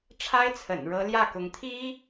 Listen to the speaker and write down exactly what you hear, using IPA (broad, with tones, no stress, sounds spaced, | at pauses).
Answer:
ʈ͡ʂʰ a˥ ɪ̯ t͡sʰ ə̰˨˩ n ɻ ɤ˧˥ l j ä˥˩ k ʊ˧˥ ŋ t̪ʰ i˥